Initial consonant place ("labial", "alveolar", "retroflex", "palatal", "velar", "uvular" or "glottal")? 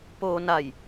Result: labial